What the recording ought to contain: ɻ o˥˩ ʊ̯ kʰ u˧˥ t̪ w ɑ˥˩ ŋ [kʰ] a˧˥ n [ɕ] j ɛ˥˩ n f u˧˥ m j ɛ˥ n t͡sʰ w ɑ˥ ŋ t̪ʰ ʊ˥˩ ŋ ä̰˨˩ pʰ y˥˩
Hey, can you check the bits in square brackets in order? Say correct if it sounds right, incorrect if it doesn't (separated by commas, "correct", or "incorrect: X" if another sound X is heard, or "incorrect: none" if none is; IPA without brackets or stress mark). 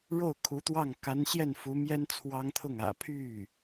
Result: incorrect: k, correct